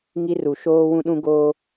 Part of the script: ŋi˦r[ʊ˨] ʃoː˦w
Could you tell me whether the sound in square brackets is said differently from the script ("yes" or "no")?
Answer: yes